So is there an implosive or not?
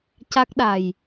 yes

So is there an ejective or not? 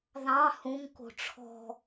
no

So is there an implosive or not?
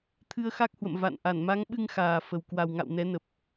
yes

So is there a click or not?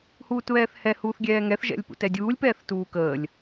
no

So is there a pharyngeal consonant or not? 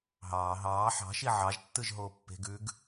yes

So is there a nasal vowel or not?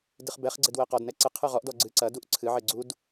no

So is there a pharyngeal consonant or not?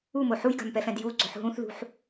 yes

